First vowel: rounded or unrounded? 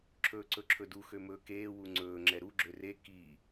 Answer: rounded